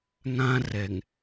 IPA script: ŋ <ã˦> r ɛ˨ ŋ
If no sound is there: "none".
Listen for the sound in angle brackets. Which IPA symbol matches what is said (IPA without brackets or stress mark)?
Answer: ã˦